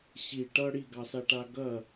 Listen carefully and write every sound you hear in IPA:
ɕi ʈʌ ɽiɡɑsaʈa ɡɐ

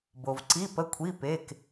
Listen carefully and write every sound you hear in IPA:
bo˨v ǀi˧˥˧pə˧˥˧kʷʰi˧˥˧ pe˧˥˧k

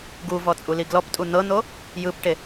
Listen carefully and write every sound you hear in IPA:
ɡuvɔ t͡sʼuliɡlɔptʼu n̪ɤn̪o | jɯpʈe

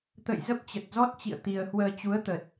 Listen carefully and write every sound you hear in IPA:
t̪ə̰˧˨j zə˦˥p̚t͡ɕə˨˩t̚zɔ˦˥t̚t͡ɕḭ˧˨ə̯ t̪i˧ə̯ hwəː˧t͡ɕu˨˦ə̯t̪ə˨˩t̚

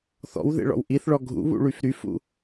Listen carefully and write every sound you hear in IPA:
θɔ̰wðḛɭɔ̰w ʔiθɭɔ ɡʱṵβṵɭyf ɾyfṵ

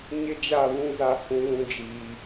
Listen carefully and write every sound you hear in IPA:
ɲɪ˦d͡ʒa˦˨βũ˦za˦ hũ˦lũ˦ d͡ʒiː˦

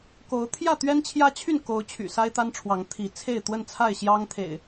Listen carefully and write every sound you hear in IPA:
ko˨˦ʊ̯ t̪ʰjä˥˨t̪ɥɛ˦nt͡ɕʰjä˦t͡ɕʰy˥˨n ko˨˦ʊ̯t͡ɕʰy̰˨˩sa˦ɪ̯ t̪a˦nʈ͡ʂʰwɑ˨˦ŋ t̪ʰi˨˦t͡sʰe˥˨ɪ̯ t̪wə˥˨nt͡sʰa˥˨ɪ̯ɕjɑ˦ŋ t̪ʰḛ˨˩ɪ̯

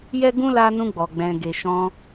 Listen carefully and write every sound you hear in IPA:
jɛ˦ɡũ˦la˧ nũ˧ɡ͡bɔ˨ɡ͡bɛ̃˨ɡe˨ ʃɔ̃˧

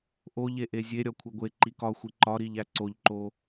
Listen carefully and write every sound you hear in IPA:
ʔoʎe ʔezʲeɾʲɒ kʷʰeɡʷeǃi kɒxʷi ǃɒɾiʎ æǀoʎǃo

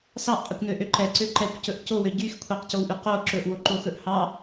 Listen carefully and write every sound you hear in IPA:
sɑʔqʼekʷnøʔø ǃɛǀø ǃɛkʷcɵʔ cowø ɟyx kʷʰɛqcowʔy qo ǁɵʔwoǃoxɵʔ hɑ

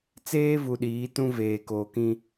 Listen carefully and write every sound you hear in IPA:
t͡seː˦vu˨ ɗiː˨˦tũ˦ veː˨koː˨kĩ˦

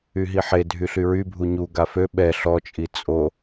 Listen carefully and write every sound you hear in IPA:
yɦiħedʱy ɬyɹybʱu ɲuɡa fø ɓɛ ɬɔt͡ʃʼi t͡sʼo

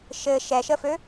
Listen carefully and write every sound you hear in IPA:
ʃɘ ʃɛʃəfø

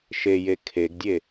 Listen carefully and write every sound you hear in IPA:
ʃeje kʰeɡdʲe

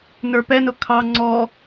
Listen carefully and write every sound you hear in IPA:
nə˞pɛnʊ kʰɑ ŋ͡ǀɔ

